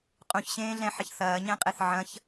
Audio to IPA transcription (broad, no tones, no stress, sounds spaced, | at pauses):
qʼ ũ ç ɕ ẽː ɮ ɛ̃ ħ ɐ ç θ ɐː ɲ ɛ̃ qʼ e θ ʕ ɐ̃ ç